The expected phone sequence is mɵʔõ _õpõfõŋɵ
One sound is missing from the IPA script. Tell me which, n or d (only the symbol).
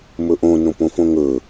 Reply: n